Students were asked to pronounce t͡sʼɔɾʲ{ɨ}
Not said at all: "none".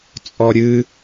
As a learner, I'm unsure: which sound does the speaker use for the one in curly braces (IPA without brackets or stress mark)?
ɨ